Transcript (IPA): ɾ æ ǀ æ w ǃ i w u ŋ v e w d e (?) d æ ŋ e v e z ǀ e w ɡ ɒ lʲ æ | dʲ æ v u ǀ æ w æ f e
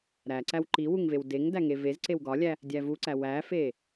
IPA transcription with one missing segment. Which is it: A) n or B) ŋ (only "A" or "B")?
B